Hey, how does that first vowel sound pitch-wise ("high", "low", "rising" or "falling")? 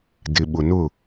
low